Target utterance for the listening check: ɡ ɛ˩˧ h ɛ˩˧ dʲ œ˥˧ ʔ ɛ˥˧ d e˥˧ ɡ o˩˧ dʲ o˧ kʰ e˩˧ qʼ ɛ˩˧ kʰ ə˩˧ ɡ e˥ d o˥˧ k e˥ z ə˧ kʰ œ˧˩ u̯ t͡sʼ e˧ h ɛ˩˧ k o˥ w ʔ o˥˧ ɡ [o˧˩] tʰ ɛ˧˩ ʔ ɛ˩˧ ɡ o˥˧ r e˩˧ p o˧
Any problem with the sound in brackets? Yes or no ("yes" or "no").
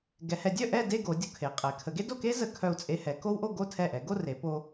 yes